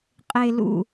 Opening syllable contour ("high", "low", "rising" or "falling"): low